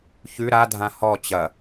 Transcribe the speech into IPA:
ç ʉ ɾ a dʱ ã h ɔ t͡ɕ ɐ

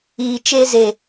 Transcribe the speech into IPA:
iː˨ t͡ʃ e˧ z e˨

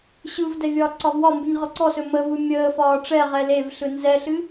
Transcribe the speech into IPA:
ɕ ɯ v d ɛ vʲ ɒː ǀ ɒ v w ɒ m b ɨ ɲ ʁ ɔ ǀ ɔ s ɵ m ə v ɯ mʲ əː f ɒː ʈ͡ʂ ɛ ʁ ɛ l e v ɬ ɯ n z ɛ ɬ ɨ

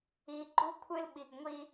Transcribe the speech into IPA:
i˨ ɡ͡ǃ u˦ kʷʰ ɨ˦ l ɓ i˨ ɡ ŋʷ i˦

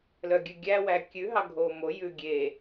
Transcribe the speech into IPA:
l œ ɡʲ ʉ ɡʲ æ w æ kʲ ʉ ɦ ɑ ɡʱ o m o j ʉ ɡʲ e

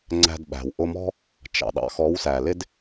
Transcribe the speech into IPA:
ŋ͡ǀ æ̤˧ d ɓ æ̤˨ w ʔ ʊ˧ m ɔ̤˦ | t͡ʃ ɑ̰˦˨ ɗ ɑ̰˦ x ɔ˨˦ w s æ˨ l ɪ˦ d

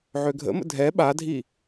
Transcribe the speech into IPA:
ʕ ø ɡʱ ə̰ m ə̰ dʱ ɛ ɓ a dʱ i

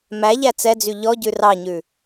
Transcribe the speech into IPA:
m æ ʎ æ t͡s ɛ d͡z y ʎ ɔ ɟ ʉ r ɑ ɲ ʉ

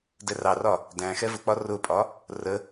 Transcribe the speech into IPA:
d ɛ r ɑ r ɒ | d æ̃ x ɛ v ʊ k͡p ɒ r ʊ pʼ ɒ | r ə

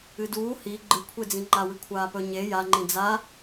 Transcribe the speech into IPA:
ɨ d uː h i ɡ͡ǃ ɨ kʷʰ e d͡z ĩ ŋ͡ǃ a w ɨ kʷʰ aː p ɵ ɲ e j a ŋ͡ǃ ĩ d͡z a

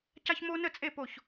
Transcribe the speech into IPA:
c a˦ ç m o˦ n ə˥˨ t͡sʼ e˥˨ p o˥˨ ç

